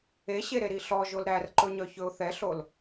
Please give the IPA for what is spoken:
eɕeɾeɾi ɬɔʒol ɾærǃɵɲœçɵʊ̯ θɛɬol

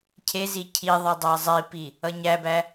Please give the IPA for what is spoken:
cʰezi cʰiðˤʌ dˤazˤipi | ʌɲæbæ

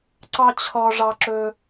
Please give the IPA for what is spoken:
ǀɑ˦t͡ɕʰɔ˧ʐɑ˧ǁɵ˧

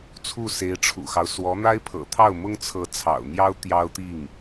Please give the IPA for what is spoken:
t͡sʰu˥˩se˧˥ɪ̯ʈ͡ʂʰṵ˨˩xɑ˦ʊ̯ swɔ˧˥n̪a˥ɪ̯pʰɤ̰˨˩t̪ʰɑ˥˩ʊ̯ mʊ˥ŋt͡sʰɤ˧˥ t͡sʰɑ̰˨˩ʊ̯n̪jɑ˥ʊ̯ t̪jɑ˥ʊ̯t̪i˥˩ŋ

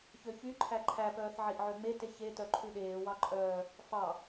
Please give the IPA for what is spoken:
çøçyǃʰæ ǃʰæpœːθ ʕiʔʕøŋ͡mete çetœ ǃʰʉɗeːwɑ ǃʼœː | fɑ

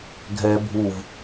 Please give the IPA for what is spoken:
ɡʱɛ bʱuv

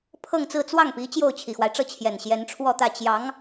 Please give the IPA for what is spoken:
pʰɤ˥˧ŋt͡sɹ̩˥˧ t͡swɑ˥˩ŋpi˧˥ t͡ɕjo˥˩ʊ̯t͡ɕʰi˨˩xwa˦ɪ̯ʈ͡ʂɤ˥˩ t͡ɕʰjɛ˨˩nɕjɛ˧˥nʈ͡ʂʰwɔ˥˧t̪ä˥˩ t͡ɕjɑ˧˥ŋ

